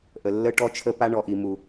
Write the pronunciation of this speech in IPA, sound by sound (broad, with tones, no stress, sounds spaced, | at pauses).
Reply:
ʔ ə˨ lː ə˦ ʈ ɔ˦ t͡ʃʰ ə˦ p a˦ ɳ ɔ˨ ʔ i˨ m u˨